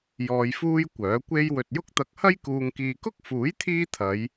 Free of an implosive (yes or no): yes